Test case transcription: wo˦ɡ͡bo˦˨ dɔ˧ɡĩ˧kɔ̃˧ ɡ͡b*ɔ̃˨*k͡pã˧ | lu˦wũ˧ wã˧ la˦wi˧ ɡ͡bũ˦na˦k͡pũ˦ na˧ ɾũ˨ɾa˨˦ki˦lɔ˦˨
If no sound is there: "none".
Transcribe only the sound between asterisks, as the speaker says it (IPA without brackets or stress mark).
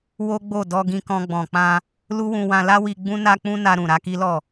ɔ̃˨